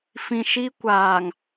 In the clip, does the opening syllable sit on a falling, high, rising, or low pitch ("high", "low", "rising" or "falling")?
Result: low